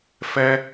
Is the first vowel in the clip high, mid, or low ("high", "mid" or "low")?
mid